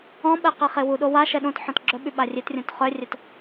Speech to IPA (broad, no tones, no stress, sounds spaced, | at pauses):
ɔ̃ ɓ ɛ q i χ e w u ɗ o w a ʃ ɛ ɗ õ t ħ ɔ̃ t ɡ͡ǁ œ ɓ y ɓ a rʲ e t rʲ õ t χ œ rʲ œ t